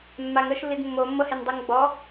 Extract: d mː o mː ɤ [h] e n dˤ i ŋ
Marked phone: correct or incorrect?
correct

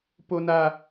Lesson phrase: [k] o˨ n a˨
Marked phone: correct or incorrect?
incorrect: p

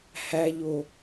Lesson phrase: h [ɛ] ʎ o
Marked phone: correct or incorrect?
incorrect: æ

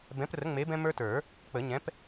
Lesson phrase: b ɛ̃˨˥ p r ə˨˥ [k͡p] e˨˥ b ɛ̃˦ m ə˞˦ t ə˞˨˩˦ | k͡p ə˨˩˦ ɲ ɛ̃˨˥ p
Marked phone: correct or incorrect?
incorrect: ŋ͡m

